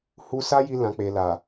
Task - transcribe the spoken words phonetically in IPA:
hu˧sa˦ ji˧lã˨k͡pe˨ la˨

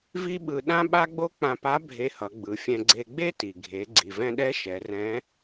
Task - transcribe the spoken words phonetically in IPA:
vi˥ɓɯ˧ ɗã˥ɓa˥ɡ͡bo˥ k͡pã˧pa˧˥ bʱe˧˥hʌ˩˧ɡ͡bɯ˩˧fʲɛ̃˧ ɡ͡ǀe˧ɡ͡be˥ti˩ ɡʱe˩˧ ɡ͡ǀi˩vɛ̃˧ɗɛ˧˥ ʃɛ˩˧rɛ̃˧˥

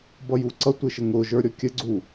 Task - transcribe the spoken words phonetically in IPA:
bʌjuǀʌ tʷɪʃəŋʊ ʒə˞ɾʲɔkʲə ɡ͡ǀu

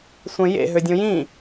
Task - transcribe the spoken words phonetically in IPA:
sʷẽjḛ ɦødʲõjĩ

